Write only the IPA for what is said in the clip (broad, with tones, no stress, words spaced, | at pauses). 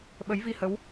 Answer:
ɓə˨˦jvi˧hə˨˦w